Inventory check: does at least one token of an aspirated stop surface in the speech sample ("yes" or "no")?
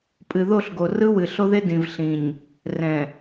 no